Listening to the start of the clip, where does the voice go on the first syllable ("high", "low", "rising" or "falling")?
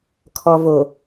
low